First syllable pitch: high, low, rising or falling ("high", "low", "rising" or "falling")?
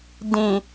low